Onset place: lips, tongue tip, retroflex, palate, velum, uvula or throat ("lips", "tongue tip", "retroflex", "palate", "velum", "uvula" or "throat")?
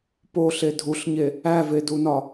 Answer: lips